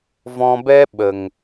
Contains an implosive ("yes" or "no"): yes